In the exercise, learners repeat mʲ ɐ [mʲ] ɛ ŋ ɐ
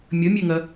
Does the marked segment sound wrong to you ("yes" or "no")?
no